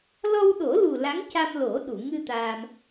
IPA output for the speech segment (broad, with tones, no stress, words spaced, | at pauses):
lɔ˧wɗo˨˩˦lu˨˩ la˧˥ŋca˧mlo˨˩˦ ɗu˨˩˨ŋɨ˧ t̪aː˧m